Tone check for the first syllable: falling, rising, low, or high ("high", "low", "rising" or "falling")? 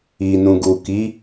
low